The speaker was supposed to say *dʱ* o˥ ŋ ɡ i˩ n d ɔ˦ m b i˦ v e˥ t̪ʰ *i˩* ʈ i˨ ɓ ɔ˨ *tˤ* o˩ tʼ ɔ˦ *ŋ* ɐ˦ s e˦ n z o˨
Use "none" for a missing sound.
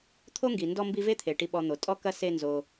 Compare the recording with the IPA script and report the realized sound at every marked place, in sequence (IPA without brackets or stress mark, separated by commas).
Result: t̪ʰ, e˩, n̪, k